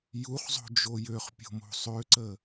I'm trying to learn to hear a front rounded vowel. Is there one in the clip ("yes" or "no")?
yes